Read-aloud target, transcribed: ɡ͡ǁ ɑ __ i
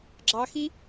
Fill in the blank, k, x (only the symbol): x